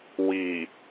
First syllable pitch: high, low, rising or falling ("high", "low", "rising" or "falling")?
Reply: low